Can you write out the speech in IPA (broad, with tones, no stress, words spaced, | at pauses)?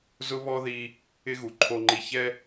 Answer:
zʊ˦βɔ˦ði˧ | ɪ˦ɣu˨ ǃʰo˧ŋ͡ǃi˧ çɛ˦